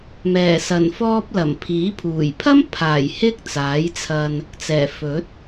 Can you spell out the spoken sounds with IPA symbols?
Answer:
m ɛː˨˩ s ɐ˨˩ n f ɔː˧ p̚ l ɐ˨˩ m pʰ iː˨˥ pʰ uː˨˩ j pʰ ɐ˥ m pʰ aː˨˩ j h ɪ˥ k̚ t͡s aː˨˥ j t͡sʰ ɐ˧ n | t͡s ɛː˨˩ f ɵ˨˥ t̚

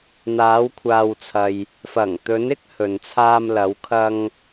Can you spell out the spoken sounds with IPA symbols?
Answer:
n̪ aː˨˧ w kʷʰ aː˨ w t͡sʰ ɐ˨ j | f ɐ˨˩ ŋ t̪ ɵ˨˧ n ɪ˥ k̚ h ɵ˨ n t͡sʰ aː˧ m l ɐ˨˧ w kʰ ɐ˧ ŋ

